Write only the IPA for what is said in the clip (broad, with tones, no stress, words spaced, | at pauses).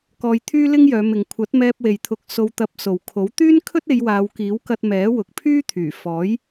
kɔː˧jt̪ʰyː˥lɪ˥ŋjœː˨˧ mɪ˨ŋkʷʰɐ˨˥t̚mɛː˧p̚ we˨jt̪ʰʊ˨˥k̚so˧w t̪ɐ˧p̚so˨wkʰo˨˥w t̪yː˥nkʰɵ˥t̚e˨˧j waː˨˧wkiː˨˥wkɐ˧t̚ mɛː˨˥wʊ˨k̚pʰyː˥t̪ʰyː˨˩ fɔː˨˥j